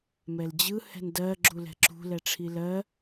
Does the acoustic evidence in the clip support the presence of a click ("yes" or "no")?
yes